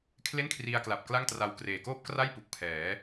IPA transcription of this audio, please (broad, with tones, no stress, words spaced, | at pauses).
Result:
kʰle˥˩nkʰri˧a̯kla˨˩p̚ kla˥˩ŋtra˧w kreː˨˩koː˥˩p̚kra˥˩j pu˨˩k̚pʰɛː˩˦